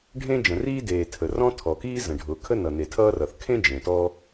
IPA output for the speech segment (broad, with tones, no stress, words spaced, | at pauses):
ɖʱẽ˥d͡ʒə̃˩riː˥deː˩ tʰə˩rɔ̃˥ tʰɔ˩kiː˥ zə̃˩ɖʱʊː˩kʰə˥ nʌ˩ ne˩tʰʌː˥rʌ˩θ kʰẽ˥ d͡ʒẽ˩tɔ˥